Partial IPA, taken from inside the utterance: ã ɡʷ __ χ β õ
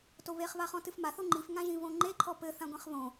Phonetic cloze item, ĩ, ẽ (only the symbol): ẽ